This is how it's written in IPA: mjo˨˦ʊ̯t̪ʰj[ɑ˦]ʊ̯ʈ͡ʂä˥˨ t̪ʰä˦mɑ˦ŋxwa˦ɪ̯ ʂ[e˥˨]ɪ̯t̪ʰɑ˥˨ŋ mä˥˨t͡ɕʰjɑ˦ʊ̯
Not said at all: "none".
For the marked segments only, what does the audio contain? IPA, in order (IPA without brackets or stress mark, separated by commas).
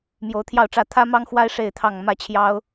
ɑ˥˨, e˥˨